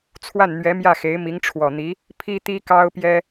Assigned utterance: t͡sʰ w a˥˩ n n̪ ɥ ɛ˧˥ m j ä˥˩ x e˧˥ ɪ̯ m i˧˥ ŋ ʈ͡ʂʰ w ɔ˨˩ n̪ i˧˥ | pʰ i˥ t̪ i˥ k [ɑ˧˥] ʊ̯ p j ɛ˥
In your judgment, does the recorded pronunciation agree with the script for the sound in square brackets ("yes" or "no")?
no